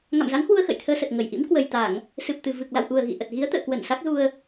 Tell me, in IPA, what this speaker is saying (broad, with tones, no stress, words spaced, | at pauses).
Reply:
ŋa̰˧˨mza˨˦ŋhwu˧ə̯ xə̰˧˨jt̪ʰəː˧sə˨˩t̚ ŋə˧˩j ʔḭ˧˥mkwə˨˩jt̪a˧˩˨ŋ | sɨ˨˩p̚t̪ɨ˨˩ vɨ˨˩k̚la̰˧˨wʔu˨˩ə̯ ɣḭ˧˨ ʔə˨˩t̚ɣi˨˦ə̯t̪ə̰ː˧˨kwə˧˩n sa˦˥k̚zu˧ə̯